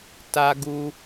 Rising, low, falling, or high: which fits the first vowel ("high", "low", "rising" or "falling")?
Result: high